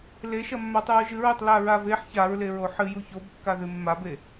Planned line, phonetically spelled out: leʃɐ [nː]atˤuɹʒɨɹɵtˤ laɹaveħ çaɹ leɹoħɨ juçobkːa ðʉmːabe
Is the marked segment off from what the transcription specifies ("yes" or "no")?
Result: yes